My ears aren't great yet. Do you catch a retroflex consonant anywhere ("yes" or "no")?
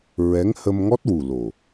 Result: no